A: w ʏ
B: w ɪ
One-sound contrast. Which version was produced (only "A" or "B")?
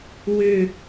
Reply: A